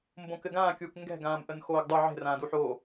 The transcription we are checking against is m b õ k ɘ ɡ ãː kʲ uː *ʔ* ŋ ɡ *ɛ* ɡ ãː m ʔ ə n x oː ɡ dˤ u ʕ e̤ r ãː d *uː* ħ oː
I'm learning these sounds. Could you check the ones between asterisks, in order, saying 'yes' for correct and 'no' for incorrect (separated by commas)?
no, no, no